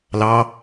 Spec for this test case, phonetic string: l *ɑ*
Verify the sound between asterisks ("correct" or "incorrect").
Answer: correct